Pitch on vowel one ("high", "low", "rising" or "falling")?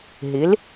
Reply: rising